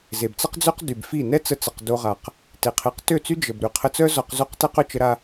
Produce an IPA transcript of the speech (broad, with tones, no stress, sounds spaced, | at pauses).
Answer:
z e˨ b t͡s ə˦ q d͡z ø˦ q d y˨ b f i˦˨ n ɛ˦ t͡s ə˧ t͡s ə˨ q d o˧ ʁ a˨ q | t e˨ qʰ e˨˦ q t ø˦˨ t͡s y˦ d͡ʒ ə˨ b ɾ y˨ qʰ ə˧ t͡s œ˦ z ɔ˧ q z o˦˨ q t ɛ˦ q œ˧ t͡ʃ ə˧ ɾ a˧